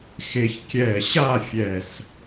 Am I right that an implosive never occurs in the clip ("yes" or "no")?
yes